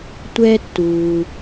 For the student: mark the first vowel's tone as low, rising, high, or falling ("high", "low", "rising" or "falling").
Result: high